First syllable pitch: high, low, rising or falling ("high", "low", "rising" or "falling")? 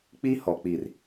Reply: high